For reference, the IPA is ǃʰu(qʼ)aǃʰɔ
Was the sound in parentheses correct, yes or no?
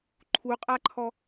yes